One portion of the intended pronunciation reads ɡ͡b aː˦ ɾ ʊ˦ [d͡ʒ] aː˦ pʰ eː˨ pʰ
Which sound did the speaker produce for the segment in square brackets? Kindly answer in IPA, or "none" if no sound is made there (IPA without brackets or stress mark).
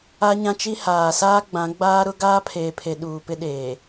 ɡ